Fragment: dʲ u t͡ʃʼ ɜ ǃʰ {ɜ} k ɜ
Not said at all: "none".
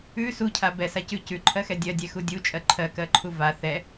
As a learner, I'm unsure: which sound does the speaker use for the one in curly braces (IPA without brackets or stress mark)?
ɜ